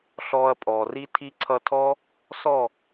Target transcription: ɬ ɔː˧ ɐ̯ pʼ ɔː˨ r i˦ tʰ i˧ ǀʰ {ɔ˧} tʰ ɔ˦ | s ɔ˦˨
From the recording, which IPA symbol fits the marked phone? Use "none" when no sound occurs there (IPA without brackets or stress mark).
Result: ʌ˧